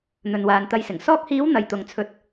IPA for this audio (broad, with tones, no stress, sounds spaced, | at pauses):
n̪ ɵ˨ n w aː˨ n t̪ ɐ˧ j s ɪ˨˩ ŋ s ɔː˧ k̚ h iː˨˧ w n̪ ɐ˨ j t̪ ʊ˨ ŋ t͡sʰ ɵ˨˥ t̚